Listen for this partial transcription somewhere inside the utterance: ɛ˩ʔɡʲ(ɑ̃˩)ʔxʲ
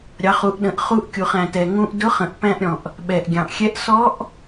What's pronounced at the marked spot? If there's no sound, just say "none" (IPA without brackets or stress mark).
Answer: ɑ̃˩